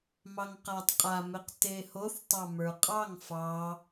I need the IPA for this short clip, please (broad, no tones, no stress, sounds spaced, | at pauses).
m ɑ ŋ q a tˤ qʼ a m e q t e h o θ tˤ ɑ m ə˞ qʼ ɑ ŋ f ɑ